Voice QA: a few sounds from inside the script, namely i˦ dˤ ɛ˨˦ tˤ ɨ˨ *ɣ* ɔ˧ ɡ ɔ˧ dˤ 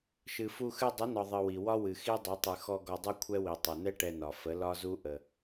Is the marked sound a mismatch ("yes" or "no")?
yes